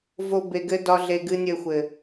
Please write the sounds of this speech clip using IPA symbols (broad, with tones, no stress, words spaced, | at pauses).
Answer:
vo˦be˧ɡɘ˦ dɒ˦ɮe˧ ɡɨ˦nʲɘ˦˨xʷɘ˨